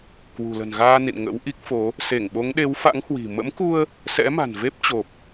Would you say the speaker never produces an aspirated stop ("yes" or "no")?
yes